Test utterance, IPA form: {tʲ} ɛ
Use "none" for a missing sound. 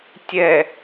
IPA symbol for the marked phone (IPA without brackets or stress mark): tʲ